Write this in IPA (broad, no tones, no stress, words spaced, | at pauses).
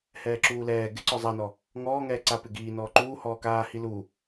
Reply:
hɛːǁuːlɛː ɡɪǀɔ zˤanɔ | ŋɔːŋɛː ǀa pɪɡiː nɔːǃuːhɔː kaː hilu